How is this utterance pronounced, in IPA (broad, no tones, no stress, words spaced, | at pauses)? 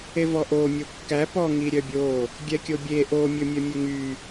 evɔʔo mʲokːæ pɔ ŋiɾʲœbʲo | ɡʲɛkʲobʲe ʔo mʲɵmʲœmʲɵŋy